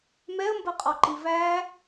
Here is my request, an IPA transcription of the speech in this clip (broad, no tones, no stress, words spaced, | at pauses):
mɛə̯mbɜqʼɔǃi væ